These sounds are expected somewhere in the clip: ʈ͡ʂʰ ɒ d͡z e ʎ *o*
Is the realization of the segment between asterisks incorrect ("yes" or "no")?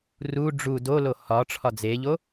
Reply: no